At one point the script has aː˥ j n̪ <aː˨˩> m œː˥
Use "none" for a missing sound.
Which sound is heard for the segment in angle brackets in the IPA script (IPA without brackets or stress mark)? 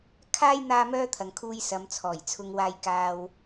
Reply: aː˥